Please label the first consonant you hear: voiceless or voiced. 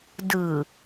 voiced